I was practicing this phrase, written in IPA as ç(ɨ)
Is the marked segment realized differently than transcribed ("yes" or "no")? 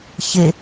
yes